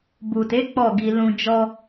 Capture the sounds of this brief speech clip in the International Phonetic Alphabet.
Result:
b u˨ t e˨˦ k͡p ɔ˦˨ ɡ i˧ l ũ˧ d͡ʒ ɔ˦

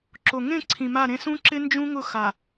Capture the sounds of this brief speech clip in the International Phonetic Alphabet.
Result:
ǁ o˨ ŋ ẽ˦˨ ǀʰ ĩ˨ m a˦˨ ɾ ẽ˦ s ũ˦ ǁ ɪ˦ n d͡ʒ ũ˦ ŋ ʊ˦˨ x a˨

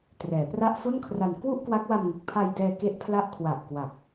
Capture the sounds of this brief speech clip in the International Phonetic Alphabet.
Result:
t r ɛː˩˦ p r a˥˩ ʔ f o˥˩ n kʰ r a˧ n k w u˥˩ ʔ k w a˦˥ k̚ w a˧ m ŋ ɯ˨˩ k̚ pʰ a˧ j d ɛː˧ k e˦˥ ʔ pʰ l a˦˥ ʔ kʰ w a˨˩ ʔ k w a˨˩ k̚

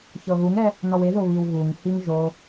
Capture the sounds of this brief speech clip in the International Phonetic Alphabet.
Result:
ç ɤ ɣ u ŋ ɛ | n ɔ w e ð o β i w ɣ u ŋ h i ŋ ʒ o

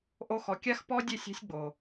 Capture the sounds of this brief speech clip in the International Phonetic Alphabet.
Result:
ʔ o˧ x ɔ˨ kʲ a˦ x p ɔ˦ dʲ e˦˨ sʲ a̤˦ sʲ ɡ͡b o˨

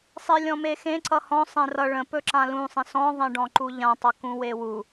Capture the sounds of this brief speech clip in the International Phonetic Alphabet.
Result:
sˤ e lʲ ɔ̃ m e x ẽ ǀ ʌ h ɔ̃ sˤ ẽ r ʌ ɭ ə̃ p ɵ ǁ ã l ũ sˤ ẽ s ɔ̃ ðˤ ẽ ɖ ɔ̃ ǃ u ʎ ã tˤ ʌ k ũ w e w u

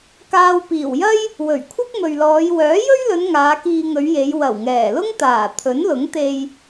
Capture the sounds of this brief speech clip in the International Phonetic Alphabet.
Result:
k aː˧ w p iː˨˩ w j ɐ˥ j | w ɵ˨˩ ɥ kʷʰ ɐ˥ k̚ m ɵ˨ ɥ l ɔː˨˧ j w œː˨˥ j ɵ˥ ɥ l ɵ˨˧ n ŋ aː˨˧ k iː˧ ŋ ɵ˨˧ ɥ j e˨˧ j w ɐ˨˩ w ŋ ɛː˨˩ l ʊ˥ ŋ t̪ aː˨˩ t̪ʰ ɵ˨˥ n l ʊ˨˥ ŋ t̪ e˧ j

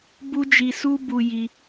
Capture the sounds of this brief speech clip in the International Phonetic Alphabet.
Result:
b u˦ d͡ʒ i˧ s u˦ b u˧ j i˧

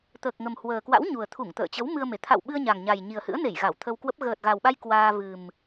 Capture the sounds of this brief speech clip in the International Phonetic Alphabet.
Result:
t̪ əː˨˩ k̚ ŋ ə˨˩ m h w əː˨˩ k w a̰˧˥ w ɲ u˨˩ ə̯ t̪ʰ u˧˩ ŋ t̪ ə̰ː˧˨ t͡ɕ ə˨˦ w m ɨ˧ ə̯ m e˨˩ t̪ʰ a̰˧˨ w ɓ ɨ˧ ə̯ ɲ a˨˩ ŋ ɲ a˨˩ j ɲ i˨˩ ə̯ h ɨ̰˧˥ ə̯ n e˧˩ j ɣ a˧˩ w t̪ʰ ə˧ w k w ə˦˥ p̚ ɣ əː˨˩ t̚ ɣ a˨˩ w ɓ a˧ j k w aː˧ v ɨ˨˩ m

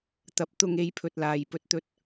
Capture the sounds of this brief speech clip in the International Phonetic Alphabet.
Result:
t̪ ɐ˨˥ p̚ t̪ ʊ˧ ŋ e˧ j pʰ ɵ˨ t̚ l aː˨ j p ɵ˨ t̚ t̪ ɵ˧ t̚

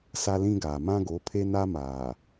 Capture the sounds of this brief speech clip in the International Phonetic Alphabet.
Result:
s a˦ l ĩ˦ ɡ aː˨ m ã˦ ɡ o˨˦ pʰ e˦ n a˦ m aː˨

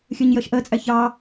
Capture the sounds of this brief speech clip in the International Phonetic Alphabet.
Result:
xʲ ɜ ɲ j ɜ ʃ ʔ ɜ t͡sʼ æ ç ɑ

